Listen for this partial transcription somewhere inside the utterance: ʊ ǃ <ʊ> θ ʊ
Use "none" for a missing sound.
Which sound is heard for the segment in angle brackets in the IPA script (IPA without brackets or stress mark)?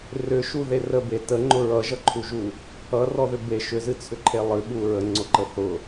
ə